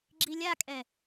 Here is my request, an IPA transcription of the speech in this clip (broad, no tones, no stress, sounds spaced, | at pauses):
ɡ͡ǁ i lʲ a kʼ ɛ